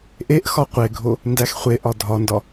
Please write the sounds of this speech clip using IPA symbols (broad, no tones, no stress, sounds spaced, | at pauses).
ʔ e ʔ x ɒ qʷ e ɡʱ o | n d æ x χʷ e ʔ ɒ dʱ ɒ n d ɒ